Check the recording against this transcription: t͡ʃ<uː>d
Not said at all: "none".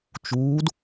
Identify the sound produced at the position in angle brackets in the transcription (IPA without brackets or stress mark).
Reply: uː